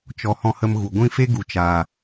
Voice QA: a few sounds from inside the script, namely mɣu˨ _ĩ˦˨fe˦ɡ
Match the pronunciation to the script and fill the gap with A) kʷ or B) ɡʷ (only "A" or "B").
B